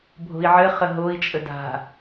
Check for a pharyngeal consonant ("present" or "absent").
present